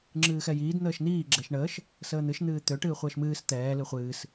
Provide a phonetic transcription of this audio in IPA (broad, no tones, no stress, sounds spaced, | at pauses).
ŋ͡ǁ ɨː x ɛ j iː d n̪ əː ʃ n̪ iː ɡ͡ǁ ɛ ʃ ɳ əː ʃ | s əː n̪ ɨ ʃ n̪ ɨː t̪ ø ʈ ɨː χʷ əː ʃ m ɨː s t̪ ɛː l ɨ χʷ ɨː s